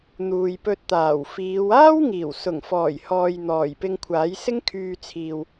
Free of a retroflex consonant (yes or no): yes